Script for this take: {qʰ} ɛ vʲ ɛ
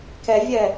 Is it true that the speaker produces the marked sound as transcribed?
no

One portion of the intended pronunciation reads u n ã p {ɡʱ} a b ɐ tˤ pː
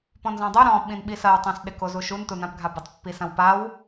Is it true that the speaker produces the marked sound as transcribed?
yes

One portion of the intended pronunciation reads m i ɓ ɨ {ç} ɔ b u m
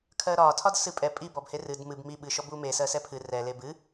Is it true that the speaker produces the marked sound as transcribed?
no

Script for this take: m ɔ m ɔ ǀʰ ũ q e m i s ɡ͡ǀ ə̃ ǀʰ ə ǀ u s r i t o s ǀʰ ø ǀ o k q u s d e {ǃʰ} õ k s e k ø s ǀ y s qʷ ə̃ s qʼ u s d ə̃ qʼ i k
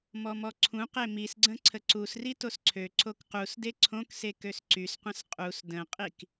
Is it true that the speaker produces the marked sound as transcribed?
no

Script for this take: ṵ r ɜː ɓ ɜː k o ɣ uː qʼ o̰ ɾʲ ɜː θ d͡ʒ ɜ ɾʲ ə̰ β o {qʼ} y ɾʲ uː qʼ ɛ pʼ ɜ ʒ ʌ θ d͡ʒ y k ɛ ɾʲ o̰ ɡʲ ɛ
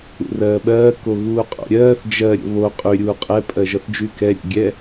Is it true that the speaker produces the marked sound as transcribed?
yes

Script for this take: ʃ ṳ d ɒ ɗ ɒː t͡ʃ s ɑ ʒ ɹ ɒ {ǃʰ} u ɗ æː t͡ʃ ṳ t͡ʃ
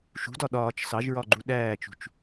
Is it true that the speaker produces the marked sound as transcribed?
no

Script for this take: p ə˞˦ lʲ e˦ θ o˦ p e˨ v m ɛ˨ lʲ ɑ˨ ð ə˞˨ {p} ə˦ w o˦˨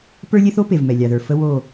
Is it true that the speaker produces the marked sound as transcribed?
no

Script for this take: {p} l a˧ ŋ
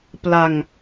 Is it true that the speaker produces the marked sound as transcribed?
yes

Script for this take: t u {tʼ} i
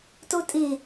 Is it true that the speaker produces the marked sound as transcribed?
yes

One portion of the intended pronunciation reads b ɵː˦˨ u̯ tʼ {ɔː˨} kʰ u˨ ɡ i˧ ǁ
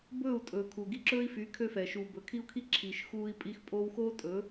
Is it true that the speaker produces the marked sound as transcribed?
no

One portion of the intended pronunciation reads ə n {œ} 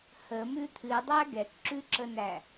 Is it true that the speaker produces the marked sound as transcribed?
no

